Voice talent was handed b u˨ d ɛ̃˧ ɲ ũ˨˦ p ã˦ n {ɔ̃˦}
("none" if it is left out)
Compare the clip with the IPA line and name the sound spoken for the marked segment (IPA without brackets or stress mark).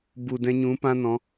ɔ̃˨˦